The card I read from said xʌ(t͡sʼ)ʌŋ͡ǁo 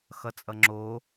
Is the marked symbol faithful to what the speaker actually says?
yes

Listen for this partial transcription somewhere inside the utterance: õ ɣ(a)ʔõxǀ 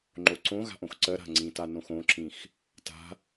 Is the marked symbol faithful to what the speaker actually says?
no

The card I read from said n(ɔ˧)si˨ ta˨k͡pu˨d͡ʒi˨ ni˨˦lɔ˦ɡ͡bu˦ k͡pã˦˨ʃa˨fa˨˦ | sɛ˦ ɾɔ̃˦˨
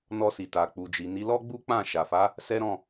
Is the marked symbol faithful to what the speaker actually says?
yes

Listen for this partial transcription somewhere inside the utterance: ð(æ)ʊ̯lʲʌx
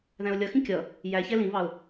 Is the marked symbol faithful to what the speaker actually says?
no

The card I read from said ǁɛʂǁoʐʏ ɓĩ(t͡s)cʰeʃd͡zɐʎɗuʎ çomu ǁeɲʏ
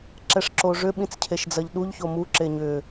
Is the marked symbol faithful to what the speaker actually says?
yes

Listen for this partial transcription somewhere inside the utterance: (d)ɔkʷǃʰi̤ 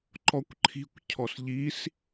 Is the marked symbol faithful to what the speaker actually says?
no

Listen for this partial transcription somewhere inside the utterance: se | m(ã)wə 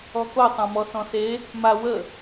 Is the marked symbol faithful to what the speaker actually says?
no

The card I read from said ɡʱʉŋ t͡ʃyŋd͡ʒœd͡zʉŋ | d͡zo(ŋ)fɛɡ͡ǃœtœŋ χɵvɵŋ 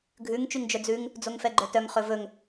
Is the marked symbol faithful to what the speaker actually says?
yes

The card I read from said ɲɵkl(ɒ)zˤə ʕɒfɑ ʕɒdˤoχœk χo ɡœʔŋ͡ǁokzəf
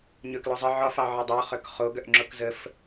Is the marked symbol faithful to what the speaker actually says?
yes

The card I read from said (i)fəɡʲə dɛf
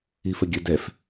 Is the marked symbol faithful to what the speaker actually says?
yes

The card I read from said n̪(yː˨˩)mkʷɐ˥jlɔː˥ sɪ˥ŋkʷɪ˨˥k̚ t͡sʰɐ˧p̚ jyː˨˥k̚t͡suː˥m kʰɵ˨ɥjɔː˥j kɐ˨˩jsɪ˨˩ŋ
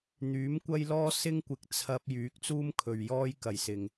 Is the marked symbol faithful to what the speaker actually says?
no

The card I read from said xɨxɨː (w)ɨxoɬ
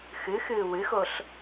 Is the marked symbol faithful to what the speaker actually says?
yes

